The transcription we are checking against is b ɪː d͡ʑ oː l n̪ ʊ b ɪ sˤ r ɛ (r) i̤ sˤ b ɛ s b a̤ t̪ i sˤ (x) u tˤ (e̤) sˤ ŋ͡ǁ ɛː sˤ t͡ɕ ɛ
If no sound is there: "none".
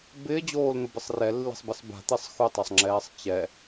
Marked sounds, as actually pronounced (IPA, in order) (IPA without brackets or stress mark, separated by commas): lː, x, e